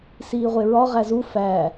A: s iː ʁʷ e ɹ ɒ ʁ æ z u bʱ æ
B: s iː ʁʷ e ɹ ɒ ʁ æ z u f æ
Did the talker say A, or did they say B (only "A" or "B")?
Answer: B